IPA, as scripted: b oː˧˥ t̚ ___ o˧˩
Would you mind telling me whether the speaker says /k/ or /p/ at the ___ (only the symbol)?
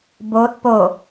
p